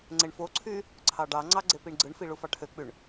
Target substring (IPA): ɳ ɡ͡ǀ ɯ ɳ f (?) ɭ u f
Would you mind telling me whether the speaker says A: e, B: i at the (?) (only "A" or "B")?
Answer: B